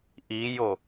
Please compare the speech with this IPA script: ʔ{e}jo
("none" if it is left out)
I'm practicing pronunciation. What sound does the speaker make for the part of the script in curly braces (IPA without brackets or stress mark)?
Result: i